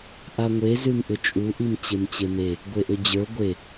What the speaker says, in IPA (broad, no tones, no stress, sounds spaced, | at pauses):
ʔ a ŋʷ e z ʉ m ʔ ʏ t͡ʃʼ u ʔ i m t͡ɕ e m t͡ɕ e m e | ɡʷ e ʔ ʏ d͡ʑ ə˞ ɡʷ e